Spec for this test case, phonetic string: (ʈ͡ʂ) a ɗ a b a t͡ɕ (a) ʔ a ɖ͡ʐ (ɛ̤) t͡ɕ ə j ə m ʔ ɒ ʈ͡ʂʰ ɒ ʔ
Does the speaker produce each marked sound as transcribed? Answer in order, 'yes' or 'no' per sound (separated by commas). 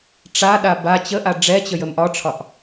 yes, no, no